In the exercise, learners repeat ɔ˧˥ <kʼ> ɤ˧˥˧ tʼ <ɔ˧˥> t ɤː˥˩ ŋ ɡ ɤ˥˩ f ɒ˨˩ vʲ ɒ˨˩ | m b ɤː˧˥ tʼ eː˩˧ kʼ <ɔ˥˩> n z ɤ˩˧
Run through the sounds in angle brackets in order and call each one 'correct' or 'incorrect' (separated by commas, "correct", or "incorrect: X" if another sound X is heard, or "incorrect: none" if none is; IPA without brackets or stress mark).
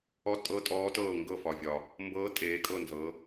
incorrect: tʼ, incorrect: ɔː˧˥, incorrect: ɤ˥˩